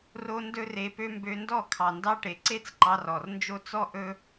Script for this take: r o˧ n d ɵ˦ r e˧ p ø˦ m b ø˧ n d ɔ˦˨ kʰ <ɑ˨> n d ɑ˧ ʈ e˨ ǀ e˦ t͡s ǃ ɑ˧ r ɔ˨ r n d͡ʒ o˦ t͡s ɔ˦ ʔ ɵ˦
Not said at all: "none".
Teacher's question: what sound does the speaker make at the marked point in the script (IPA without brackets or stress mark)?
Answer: ɑ˨